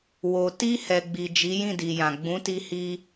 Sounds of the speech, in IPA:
wo˨ ti˧ hɛ˨ɡ͡bi˨ d͡ʒi˨˦jĩ˦˨di˨jã˨ ɡ͡bũ˨˦ti˧hi˧

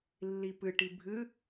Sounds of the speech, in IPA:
lːipɨʈi bʱɨ

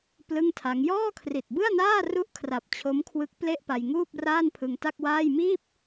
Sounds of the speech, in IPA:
plɯ˥˩ŋtʰa˦˥ŋ jɔː˥˩kʰri˨˩t̚bɯ˥˩a̯naː˥˩ ru˥˩ʔkʰra˨˩p̚t͡ɕʰo˦˥mkʰwɯ˦˥k̚ ple˥˩ʔpa˧jŋuː˥˩p̚ raː˥˩npʰɯ˧ŋta˥˩k̚waː˥˩j miː˥˩p̚

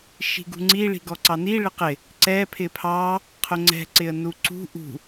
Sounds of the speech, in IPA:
ʃi̤ɡṳŋ͡ǀi ɭi̤ɡɔǀɑni ɭɪqɪ | ǀɛ pʰɪpʰɑ | qʰʊŋ͡ǀɛ̤ ǀɪə̯nuǀṳ ʔṳ

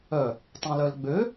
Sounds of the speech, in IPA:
œ | tˤɛ̃lœlɡ͡bø

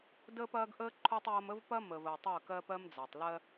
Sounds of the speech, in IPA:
dəː˦pɐː˦ɡʔəː˦ ǃʰo˦tˤjɐ˦m ə˦vpɐ˦ məː˨vəː˨tˤəː˦˨kɜː˦p ɜ˦md͡za˨tˤ lɜ˦

